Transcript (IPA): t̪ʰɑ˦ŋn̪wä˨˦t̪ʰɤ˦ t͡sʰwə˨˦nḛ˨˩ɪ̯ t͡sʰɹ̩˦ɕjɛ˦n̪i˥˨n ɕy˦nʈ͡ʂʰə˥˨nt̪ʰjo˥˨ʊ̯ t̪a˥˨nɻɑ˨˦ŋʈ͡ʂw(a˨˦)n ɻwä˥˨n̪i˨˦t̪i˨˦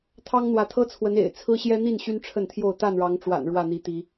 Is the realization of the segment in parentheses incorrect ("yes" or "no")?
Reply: yes